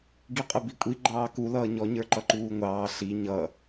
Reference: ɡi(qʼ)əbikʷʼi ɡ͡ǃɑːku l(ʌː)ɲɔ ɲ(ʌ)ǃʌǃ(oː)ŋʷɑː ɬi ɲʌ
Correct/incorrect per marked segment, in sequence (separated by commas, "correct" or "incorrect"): correct, correct, incorrect, incorrect